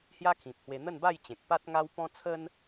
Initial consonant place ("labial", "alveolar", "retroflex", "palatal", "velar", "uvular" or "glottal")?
glottal